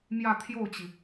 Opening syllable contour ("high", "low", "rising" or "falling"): falling